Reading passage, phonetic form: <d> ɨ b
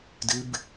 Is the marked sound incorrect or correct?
correct